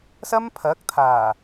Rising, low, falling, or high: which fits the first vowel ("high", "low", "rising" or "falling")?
high